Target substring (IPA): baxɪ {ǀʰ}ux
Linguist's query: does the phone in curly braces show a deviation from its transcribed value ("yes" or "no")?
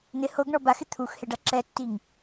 yes